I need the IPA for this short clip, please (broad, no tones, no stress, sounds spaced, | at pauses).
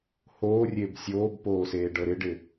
h oː rʲ e b sʲ oː b p oː s eː ɖ ɤ ɾ ɪ ɖ ɪ